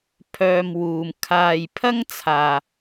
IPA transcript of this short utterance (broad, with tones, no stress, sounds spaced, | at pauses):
pʰ œː˧ m w uː˨ m kʰ aː˨ j pʰ ɐ˥ ŋ t͡sʰ aː˨